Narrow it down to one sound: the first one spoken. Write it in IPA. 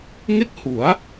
ŋ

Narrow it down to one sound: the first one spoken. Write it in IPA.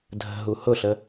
dʱ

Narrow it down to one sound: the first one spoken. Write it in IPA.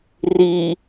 r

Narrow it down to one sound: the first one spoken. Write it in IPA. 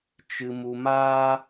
t͡ʃ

